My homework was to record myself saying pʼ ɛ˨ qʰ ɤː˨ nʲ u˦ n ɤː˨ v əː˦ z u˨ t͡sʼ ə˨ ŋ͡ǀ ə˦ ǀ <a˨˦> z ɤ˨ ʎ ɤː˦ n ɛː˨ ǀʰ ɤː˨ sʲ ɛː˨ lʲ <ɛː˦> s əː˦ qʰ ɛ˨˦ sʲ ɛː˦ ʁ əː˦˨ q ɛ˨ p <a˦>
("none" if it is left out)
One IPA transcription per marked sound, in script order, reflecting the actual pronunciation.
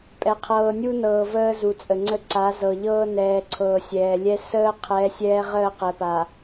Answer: a˨˦, ɛ˦, a˨

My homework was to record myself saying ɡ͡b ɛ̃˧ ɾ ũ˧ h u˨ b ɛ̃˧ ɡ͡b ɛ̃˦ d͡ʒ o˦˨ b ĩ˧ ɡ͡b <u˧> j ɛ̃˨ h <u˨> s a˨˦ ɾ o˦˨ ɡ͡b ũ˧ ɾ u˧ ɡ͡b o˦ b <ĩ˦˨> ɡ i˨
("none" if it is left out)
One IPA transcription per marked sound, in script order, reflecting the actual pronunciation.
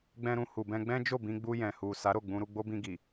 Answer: u˧, u˨, ĩ˧

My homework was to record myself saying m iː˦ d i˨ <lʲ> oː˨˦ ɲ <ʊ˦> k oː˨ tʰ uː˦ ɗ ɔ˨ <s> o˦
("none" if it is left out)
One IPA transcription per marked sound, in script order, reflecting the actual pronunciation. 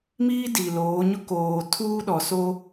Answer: l, ʊ˦, s

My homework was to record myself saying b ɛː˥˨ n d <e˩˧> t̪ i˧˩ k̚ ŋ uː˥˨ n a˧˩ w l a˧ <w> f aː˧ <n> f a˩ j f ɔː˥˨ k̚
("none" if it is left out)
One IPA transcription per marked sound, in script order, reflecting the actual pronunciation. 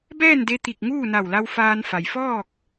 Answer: e˧, w, n

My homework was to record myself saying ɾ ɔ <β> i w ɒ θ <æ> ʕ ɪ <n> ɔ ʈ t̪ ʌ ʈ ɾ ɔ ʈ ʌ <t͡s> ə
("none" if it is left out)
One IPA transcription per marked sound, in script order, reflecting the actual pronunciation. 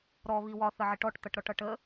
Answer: β, ə, ʈ, ʈ

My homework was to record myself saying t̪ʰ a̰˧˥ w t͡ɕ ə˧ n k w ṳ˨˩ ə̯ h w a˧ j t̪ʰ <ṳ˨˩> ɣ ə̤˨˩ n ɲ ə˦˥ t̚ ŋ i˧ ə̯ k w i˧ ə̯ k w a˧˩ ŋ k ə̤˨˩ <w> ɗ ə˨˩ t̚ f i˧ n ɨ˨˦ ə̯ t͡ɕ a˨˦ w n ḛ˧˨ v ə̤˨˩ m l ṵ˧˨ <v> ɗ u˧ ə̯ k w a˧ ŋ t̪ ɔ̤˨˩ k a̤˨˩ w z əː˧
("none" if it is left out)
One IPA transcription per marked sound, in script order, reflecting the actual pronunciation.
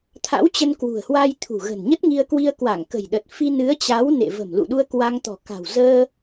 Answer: ṳ˨˩, j, none

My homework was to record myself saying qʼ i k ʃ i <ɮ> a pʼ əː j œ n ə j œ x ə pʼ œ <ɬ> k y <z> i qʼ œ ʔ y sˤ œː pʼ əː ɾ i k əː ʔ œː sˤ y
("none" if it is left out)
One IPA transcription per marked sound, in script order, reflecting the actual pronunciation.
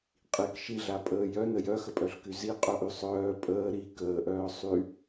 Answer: ɮ, ɬ, z

